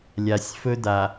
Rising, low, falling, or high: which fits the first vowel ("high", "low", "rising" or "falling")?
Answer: low